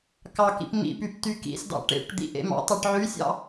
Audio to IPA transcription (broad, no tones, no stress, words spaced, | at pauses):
kɑkḭp mḭpyp tykḭsdɑ̰ ʈḛʈ d̪ḭʔḛmɑ̰tˤɑʈ ʕysʲɑ̰